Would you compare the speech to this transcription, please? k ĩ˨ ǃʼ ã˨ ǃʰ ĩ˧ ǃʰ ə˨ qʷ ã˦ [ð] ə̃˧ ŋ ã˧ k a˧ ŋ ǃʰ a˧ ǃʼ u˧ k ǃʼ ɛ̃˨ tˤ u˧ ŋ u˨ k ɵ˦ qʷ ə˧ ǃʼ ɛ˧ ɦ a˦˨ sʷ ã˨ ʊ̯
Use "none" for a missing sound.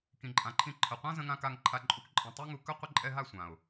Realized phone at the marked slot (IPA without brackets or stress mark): z